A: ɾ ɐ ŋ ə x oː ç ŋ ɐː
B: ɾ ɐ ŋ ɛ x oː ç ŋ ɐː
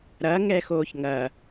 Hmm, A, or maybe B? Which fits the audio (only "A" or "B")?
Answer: B